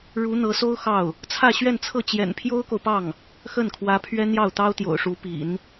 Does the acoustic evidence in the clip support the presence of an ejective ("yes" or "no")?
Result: no